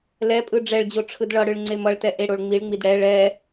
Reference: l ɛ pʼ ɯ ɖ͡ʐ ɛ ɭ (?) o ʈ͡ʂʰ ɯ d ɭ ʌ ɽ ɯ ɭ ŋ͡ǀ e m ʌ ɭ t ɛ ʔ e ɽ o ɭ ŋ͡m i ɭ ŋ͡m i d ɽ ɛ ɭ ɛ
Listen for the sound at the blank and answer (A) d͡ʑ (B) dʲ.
A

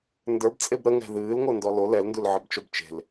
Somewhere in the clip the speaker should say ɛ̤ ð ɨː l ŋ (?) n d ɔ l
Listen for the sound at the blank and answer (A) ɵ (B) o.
B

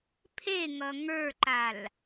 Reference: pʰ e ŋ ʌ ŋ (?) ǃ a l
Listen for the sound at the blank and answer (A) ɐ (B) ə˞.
B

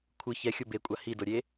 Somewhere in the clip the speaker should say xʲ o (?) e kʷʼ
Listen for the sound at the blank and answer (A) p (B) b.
B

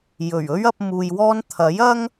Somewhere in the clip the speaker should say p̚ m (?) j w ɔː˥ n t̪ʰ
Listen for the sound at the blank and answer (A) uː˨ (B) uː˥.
A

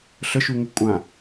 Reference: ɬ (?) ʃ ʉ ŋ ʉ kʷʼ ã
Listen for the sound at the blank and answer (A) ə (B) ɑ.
A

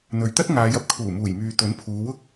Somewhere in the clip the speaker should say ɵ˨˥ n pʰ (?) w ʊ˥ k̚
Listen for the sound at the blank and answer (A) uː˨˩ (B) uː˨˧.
B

